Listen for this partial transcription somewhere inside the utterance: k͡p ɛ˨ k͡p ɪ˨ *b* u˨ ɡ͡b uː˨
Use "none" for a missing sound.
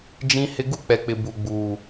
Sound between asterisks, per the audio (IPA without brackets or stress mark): b